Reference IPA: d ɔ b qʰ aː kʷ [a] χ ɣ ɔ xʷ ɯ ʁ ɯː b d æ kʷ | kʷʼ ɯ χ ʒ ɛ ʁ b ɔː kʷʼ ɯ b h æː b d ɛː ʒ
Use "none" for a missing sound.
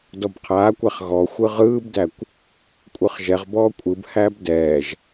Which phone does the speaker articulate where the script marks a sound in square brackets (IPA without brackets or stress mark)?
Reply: æ